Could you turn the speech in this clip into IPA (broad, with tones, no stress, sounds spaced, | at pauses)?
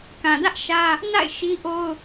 k ã˨ d ä˦ ʔ ʃ ä˦ | n a̰˦˨ ɪ̯ ʃ i˦ ʔ o˦ ʊ̯